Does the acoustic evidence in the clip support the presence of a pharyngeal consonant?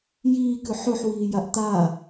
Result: yes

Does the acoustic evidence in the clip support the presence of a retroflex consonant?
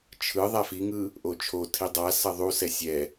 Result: no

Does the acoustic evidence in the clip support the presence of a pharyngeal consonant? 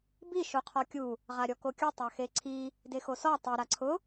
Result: no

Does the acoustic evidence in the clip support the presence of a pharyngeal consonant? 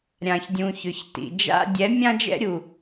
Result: no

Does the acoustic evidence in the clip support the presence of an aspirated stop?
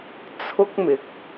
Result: yes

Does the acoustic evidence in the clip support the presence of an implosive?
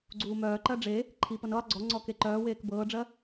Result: no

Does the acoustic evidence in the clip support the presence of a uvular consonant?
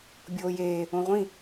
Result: yes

